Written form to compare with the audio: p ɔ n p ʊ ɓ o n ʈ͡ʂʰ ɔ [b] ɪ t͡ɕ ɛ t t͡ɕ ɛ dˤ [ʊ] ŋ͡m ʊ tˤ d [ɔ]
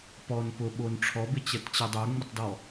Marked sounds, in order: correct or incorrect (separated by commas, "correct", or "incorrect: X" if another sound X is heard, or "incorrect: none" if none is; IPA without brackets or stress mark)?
correct, incorrect: ɵ, correct